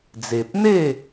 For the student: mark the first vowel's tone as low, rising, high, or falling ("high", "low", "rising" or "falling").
low